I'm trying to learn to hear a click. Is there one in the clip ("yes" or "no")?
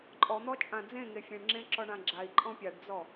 yes